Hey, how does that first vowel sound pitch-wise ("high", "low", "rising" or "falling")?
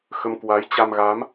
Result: rising